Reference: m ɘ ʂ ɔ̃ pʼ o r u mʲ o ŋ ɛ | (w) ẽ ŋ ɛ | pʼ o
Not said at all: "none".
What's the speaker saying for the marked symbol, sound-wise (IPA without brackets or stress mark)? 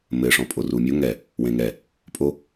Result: w